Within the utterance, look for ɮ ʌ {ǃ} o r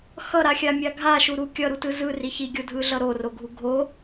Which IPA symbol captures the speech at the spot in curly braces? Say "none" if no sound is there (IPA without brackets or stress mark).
ɾ